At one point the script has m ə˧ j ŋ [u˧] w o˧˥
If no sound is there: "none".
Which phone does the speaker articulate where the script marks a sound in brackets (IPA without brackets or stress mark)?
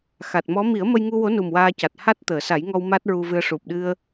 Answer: u˧